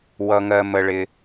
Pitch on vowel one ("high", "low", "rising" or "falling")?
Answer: low